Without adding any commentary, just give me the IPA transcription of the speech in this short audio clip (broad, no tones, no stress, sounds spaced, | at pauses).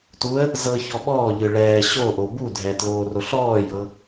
t u ə̯ | z ɤ ç ɔ ɓ ɔː ʎ ɯ ɭ ɛː ɕ o ʔ o b u dʱ ɛ t l oː r o ɬ ɔː j ɤ